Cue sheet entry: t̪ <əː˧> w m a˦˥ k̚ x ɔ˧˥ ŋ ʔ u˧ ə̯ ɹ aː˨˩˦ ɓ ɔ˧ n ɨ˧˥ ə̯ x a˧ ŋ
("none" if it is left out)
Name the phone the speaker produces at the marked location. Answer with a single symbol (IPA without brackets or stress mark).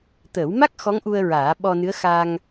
əː˨˩˦